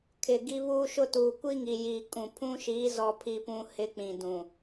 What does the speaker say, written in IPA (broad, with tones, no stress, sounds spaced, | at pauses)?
kʰ ɪ˨ ɡ i˦ β uː˦ ʃ ʊ˦ t uː˨ kʷ i˦ ŋ i˨ j iː˨ kʼ ũ˨ pʰ ũ˦ ʃ iː˨˦ z ɔ˦ pʰ i˦ p ũ˦ h ɪ˦ k͡p ĩ˨ d ũ˨